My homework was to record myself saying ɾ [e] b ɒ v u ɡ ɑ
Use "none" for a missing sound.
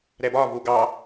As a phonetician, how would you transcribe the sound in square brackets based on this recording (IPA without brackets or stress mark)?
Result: ɛ